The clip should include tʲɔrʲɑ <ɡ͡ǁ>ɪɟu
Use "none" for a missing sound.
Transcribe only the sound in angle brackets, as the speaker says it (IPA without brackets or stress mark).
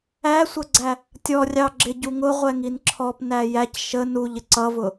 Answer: ɡ͡ǁ